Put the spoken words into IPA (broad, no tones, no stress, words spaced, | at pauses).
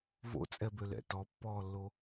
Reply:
vo̰t͡sʼɛbølɛ̰ tɔpːɔːlːo